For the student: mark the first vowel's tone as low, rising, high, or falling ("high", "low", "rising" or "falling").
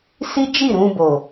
high